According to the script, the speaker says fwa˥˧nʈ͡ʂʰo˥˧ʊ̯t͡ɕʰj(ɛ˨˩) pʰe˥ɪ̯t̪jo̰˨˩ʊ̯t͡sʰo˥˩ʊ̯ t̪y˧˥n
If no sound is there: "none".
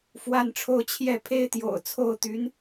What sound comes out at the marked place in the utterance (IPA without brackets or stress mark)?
ɛ˥˩